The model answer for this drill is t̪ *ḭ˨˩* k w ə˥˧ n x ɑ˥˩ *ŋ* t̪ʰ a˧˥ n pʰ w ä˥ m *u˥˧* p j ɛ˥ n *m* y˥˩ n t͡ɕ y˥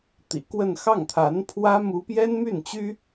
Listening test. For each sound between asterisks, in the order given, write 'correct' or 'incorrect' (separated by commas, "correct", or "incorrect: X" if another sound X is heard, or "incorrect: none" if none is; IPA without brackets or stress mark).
correct, correct, incorrect: u˥, correct